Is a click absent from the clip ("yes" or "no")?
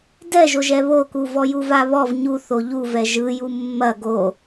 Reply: yes